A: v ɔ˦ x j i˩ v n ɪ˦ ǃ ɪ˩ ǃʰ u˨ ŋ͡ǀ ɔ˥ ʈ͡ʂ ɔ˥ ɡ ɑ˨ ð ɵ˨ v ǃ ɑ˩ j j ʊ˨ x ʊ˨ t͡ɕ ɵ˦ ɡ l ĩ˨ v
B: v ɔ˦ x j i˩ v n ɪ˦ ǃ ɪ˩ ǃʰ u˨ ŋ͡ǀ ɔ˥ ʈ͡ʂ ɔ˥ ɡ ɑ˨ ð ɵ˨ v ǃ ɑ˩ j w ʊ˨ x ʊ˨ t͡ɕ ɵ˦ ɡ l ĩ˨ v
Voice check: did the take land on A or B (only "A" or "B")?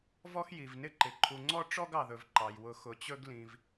B